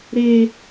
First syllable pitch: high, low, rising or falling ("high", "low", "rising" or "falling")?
high